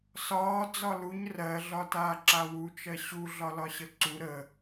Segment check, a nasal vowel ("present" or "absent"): absent